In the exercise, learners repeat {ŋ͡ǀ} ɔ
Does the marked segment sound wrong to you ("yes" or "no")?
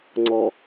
no